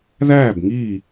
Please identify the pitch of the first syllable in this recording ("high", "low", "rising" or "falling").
falling